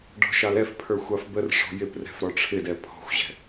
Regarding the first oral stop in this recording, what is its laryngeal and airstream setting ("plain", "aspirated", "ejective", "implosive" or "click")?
plain